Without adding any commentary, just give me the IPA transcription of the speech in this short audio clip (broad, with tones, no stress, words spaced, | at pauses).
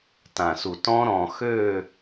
tã˨su˨ tɔ̃˦ɾɔ̃˨xø˦˨